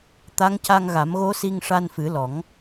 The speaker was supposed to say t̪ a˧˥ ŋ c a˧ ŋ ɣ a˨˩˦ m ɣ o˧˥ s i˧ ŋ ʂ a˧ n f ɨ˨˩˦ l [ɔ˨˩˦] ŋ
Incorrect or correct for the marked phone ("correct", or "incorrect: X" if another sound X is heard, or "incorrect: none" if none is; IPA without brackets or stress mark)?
correct